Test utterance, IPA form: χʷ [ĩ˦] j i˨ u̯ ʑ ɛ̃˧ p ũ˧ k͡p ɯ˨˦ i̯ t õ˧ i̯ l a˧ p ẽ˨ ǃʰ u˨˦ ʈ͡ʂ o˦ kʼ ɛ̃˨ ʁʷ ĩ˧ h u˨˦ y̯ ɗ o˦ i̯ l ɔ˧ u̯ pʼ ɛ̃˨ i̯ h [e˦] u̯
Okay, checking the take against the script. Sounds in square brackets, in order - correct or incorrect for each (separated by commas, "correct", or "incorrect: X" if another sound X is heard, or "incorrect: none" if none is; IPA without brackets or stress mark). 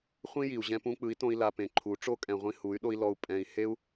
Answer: correct, correct